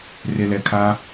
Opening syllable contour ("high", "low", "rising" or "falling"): low